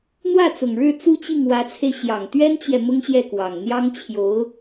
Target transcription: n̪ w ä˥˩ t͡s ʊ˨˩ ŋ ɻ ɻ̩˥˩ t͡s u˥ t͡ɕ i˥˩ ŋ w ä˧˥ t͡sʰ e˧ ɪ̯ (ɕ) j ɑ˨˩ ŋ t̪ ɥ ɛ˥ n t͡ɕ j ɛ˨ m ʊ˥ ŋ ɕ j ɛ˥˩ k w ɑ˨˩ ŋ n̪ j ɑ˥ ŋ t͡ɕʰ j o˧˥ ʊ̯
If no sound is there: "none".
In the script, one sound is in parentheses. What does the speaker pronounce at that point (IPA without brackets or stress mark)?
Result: ɕ